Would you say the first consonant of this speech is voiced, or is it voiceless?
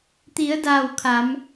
voiceless